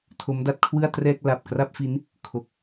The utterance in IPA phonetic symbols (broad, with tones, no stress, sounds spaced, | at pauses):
tʰ o˦˥ m d a˦˥ t̚ kʰ w ɯ˥˩ a̯ t r ɛː˥˩ k̚ l a˨˩ p̚ k r a˥˩ p̚ f i˦˥ n | kʰ o˨˩ k̚